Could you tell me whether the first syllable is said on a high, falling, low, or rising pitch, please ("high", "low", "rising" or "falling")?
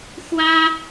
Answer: high